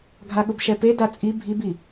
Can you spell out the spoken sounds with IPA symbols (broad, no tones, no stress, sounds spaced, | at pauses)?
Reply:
ɡʱ a ɠ ʊ b ʃ ɛ p e d a t͡sʼ i bʱ i b i